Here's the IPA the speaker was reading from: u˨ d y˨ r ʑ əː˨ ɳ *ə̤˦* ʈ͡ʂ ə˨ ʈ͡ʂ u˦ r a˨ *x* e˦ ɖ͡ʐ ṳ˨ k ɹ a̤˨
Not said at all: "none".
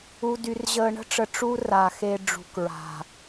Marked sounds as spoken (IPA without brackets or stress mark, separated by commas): ə̤˦, x